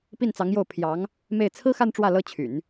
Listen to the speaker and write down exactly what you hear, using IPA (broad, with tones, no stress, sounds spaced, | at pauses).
p i˥˩ n t͡s ɑ˧˥ ŋ j o˥˩ ʊ̯ pʰ j ɑ˧˥ ŋ | m e˥˩ ɪ̯ t͡sʰ ɹ̩˥ x a˥˧ n ʈ͡ʂ w ä˥˩ l ɤ˥ t͡ɕʰ y̰˨˩˦ n